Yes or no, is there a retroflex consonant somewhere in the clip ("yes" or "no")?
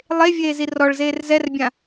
yes